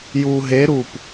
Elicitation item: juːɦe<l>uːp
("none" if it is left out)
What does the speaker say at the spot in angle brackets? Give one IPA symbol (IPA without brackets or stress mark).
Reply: ɾ